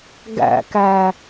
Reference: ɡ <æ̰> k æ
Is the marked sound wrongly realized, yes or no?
no